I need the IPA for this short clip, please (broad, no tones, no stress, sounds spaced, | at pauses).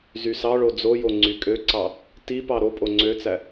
z y s ɑ ɭ o d͡z o j o ŋ͡ǀ y kʼ ø ǀ ɑ | t i p ɑ ɾ o pʼ o ŋ͡ǀ ø t͡s æ